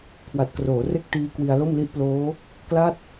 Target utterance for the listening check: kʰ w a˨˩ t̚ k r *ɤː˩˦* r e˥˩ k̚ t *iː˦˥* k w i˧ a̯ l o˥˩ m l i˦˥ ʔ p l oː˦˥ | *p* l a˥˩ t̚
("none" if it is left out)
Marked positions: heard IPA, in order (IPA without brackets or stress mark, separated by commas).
oː˩˦, iː˦˥, k